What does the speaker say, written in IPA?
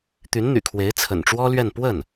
t̪ y˧˥ n n̪ y̰˨˩ kʰ w e˧˥ ɪ̯ t͡sʰ ə̰˨˩ n ʈ͡ʂ w ɔ˥ l ɥ ɛ˥˧ n p w ə˥˩ n

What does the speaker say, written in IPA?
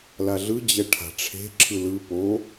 l a ɮ ɯ d͡ʑ ɛ ʈʰ a̤ ʈ͡ʂʰ e̤ ǁʰ ɯ l ɯ p o

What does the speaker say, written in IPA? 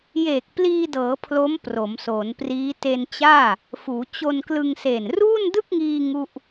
j eː˨˩ k̚ p l iː˧ d ɤː˩˦ pʰ l o˦˥ m p r o˩˦ m s oː˩˦ n p r iː˦˥ t e˧ n t͡ɕ aː˥˩ | f uː˩˦ t͡ɕ o˧ n k l ɯ˧ ŋ s e˨˩ n r uː˥˩ n d ɯ˥˩ k̚ ŋ iː˧ ŋ u˥˩ ʔ

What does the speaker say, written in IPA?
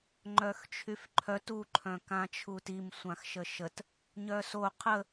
ŋ͡ǃ œ x t͡ʃʰ y f ǃʰ œ t u ǃʰ œ̃ k ã t͡ʃʰ u t i m sʷ ã x ʃ ə ʃ ə t | ɲ œ s o qʰ ə

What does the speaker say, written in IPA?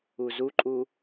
u z u ǃʼ u

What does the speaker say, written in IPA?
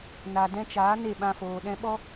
n a˨ d ɛ̃˧ t͡ʃ aː˨˦ n e˦˨ ɓ ã˧ f oː˨ ɗ ɛ̃˧ ɓ ɔ˦

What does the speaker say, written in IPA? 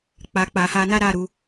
k͡p a˨ k͡p a˨ h a˧ n a˦ ɾ a˦˨ ɾ u˨˦

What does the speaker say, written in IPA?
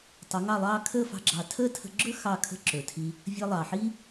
tˤ ɵ˨˦ ŋ ɑ˦˨ lˠ ɑː˦ kʰ əː˦˨ f ɑ̤˧ ɡ͡ǁ ɑ˨ tʰ əː˦ tʰ ə̤˦ ɡ͡ǁ ɵ˦ x ɑ˦˨ kʰ ə̤˦ ǁ ɵ˨ tʰ i˧ | vʲ əː˧ lˠ ɑ˨ ħ i˦

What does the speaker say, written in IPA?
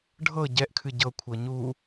ɖʱ ɤ ɟ ɛ ʔ kʰ ɨ ɟ ɤ kʷʰ ɤ ɲ u

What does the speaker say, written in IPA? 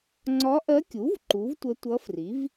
ŋ͡ǀ ɒ˧˥ ʔ ɜ˧˥ kʲ u˩˥ v ǃ u˩˥ v tʷ ə˧˥ tʷ ʌ˧˥ f r i˩˥ v

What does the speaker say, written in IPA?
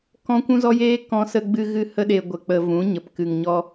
k ɔ̃˦ kʷ ũ˦ z ɔ˦ j eː˦ k ɔ̃˦ s ə˦ ɡ͡b ɨ˦ ɣ ɨ˦ h ə˦ ɗ e˧ ɡʷ ə˧ k͡p ə˧ v ũ˨˦ ɲ ə˨ p k ɨ˨ ŋ ɲ ɔ˧

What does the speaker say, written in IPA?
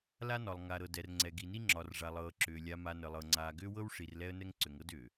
l a˦ n ɒ˨ lˠ ŋ a˨ ɾ ɤ˨ d ɛ˨ r ŋ͡ǀ ɛ˨ ɡ i˨ n i˦ ŋ͡ǁ ɒ˨ r ʐ a˨ lˠ ɤː˨ ǁ ʏː˨ lʲ a˨ m a˨ n ə˨ lˠ ɤ˨ ŋ͡ǀ aː˨ ɡ ʏː˦ w ɤ˦ w ʂ i˨ r l ɛ˦ ə̯ n ɛ˦ ŋ ǀ ʏ˨ ŋ ɤ˦ d ʏː˨

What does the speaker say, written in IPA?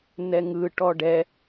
n ɛ ŋ ɯ ʈ ɔ ɖ ɛ

